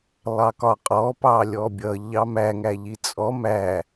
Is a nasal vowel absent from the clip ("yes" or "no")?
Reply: yes